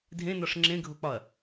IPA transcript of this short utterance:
dʱẽnɒʂ ŋ͡ǁẽɡʱok͡pɒɐ̯

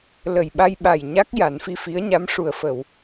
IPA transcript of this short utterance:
lə˨˩jɓa˧jɓa˨˩j ɲa˦˥k̚ ja˨˩˦nfi˧fi˧˥ə̯ɲa˧˥m ʂu˨˩ə̯fə˨˩˨w

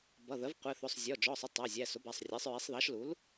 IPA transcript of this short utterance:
bʌ˩˧˩ðəː˩˥v qʷɛ˩˧˩θʊː˩˧˩sˤ zʲɔ˩˧˩ d͡ʒɔː˩˧˩sˤə˩˧˩ tˤæ˩˧˩zʲæ˩˧˩ sʊ˩˥bæ˩˧˩sˤrʲæ˩˥sˤɹi˩˥sˤ ðɑ˩˥ʃlu˩˥l

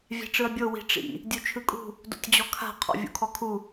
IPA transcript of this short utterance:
vʲɛ̤ʈ͡ʂɯɐ̯bʲo wi̤ʈ͡ʂḭ | dʲut͡ʃʰɯkʼṳ | do̰tʲd͡ʑɔkʰa̤ qʰɔ̰vʲṵkʰɔkʰu

